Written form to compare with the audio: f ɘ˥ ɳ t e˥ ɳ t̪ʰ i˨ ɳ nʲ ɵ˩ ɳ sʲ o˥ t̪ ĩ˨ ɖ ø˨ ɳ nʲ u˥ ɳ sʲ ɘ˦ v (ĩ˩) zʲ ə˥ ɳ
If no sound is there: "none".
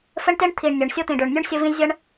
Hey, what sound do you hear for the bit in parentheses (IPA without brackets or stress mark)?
ĩ˦